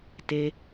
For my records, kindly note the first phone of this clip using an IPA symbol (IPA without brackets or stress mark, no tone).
t